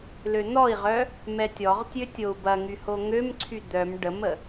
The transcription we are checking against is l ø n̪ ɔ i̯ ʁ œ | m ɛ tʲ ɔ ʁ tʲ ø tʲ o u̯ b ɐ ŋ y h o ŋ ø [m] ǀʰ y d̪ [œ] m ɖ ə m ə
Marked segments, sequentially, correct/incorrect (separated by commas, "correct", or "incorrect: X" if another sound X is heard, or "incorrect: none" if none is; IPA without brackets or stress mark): correct, correct